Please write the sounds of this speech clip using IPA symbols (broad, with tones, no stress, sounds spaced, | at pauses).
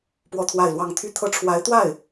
p w ɔ˥˧ t̪ʰ w a˥˧ ɪ̯ l w ɑ˥˧ ŋ t̪ʰ y˥˧ t̪ʰ ɤ˥˩ ʈ͡ʂʰ w a˧˥ ɪ̯ t̪ w a˥˩ ɪ̯